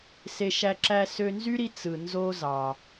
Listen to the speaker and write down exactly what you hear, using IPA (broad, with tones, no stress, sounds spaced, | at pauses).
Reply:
s e˧ ʃ æ˧ ǁ æ˧ s ø˧ n z y˥ ɾ i˧ t͡s ɯ˩ n z o˧ z ɑ˩